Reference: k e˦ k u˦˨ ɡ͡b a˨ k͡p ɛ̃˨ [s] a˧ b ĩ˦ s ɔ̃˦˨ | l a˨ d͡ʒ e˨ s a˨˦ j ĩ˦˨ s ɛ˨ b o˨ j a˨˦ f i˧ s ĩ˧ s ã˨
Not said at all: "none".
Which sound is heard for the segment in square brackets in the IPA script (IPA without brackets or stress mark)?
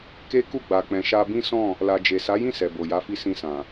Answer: ʃ